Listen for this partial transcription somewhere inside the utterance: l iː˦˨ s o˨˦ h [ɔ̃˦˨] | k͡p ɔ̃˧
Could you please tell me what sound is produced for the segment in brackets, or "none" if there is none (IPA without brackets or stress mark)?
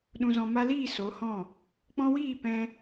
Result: ɔ̃˦˨